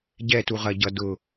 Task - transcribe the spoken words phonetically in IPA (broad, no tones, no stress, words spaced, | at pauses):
ɟɛtuʁɐɟʌ dʊ